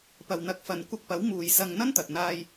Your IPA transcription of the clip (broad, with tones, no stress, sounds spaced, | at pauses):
p ɐ˨ w n̪ ɐ˨˥ k̚ f ɐ˨ n kʷ ɐ˧ k̚ p ɐ˨˥ w m uː˨ j s ɐ˧ ŋ n̪ ɐ˥ n t̪ ɐ˨ t̚ n̪ aː˧ j